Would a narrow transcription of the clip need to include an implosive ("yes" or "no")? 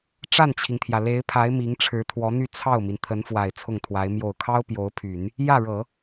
no